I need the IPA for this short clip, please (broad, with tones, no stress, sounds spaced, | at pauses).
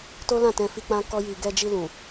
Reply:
t o˦ l ã˦˨ t ɛ̃˧ f i˧ k͡p ã˦ k ɔ˦ j i˧ ɡ ɛ˧ d͡ʒ i˧ l ũ˨